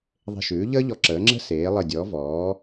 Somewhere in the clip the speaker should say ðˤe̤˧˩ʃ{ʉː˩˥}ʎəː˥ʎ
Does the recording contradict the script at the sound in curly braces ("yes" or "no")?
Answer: no